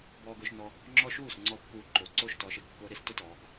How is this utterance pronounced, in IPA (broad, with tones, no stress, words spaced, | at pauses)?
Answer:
bɔː˧ɡʊː˧ʃnɔ˧ | ŋ͡ǁɔ˧ ʃuː˥˩sŋ͡ǀɔ˧ pːuː˧ǃo˨˩ ǀo˥˩ʃ tɔ˨˥ʃe˨˩ɡkːʊː˦˥ ɾi˨˥s tʊ˦˥ tɔː˩˧ɡ